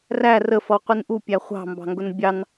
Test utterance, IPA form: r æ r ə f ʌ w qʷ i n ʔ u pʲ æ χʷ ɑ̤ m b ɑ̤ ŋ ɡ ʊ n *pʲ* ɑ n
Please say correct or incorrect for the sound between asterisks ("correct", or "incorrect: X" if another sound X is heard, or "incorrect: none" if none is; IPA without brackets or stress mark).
incorrect: bʲ